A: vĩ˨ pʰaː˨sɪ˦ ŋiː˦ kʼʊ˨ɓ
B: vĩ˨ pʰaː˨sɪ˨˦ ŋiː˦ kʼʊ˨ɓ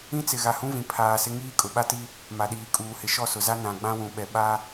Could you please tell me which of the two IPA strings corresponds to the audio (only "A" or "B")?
A